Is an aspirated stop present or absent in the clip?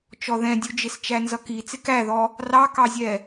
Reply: absent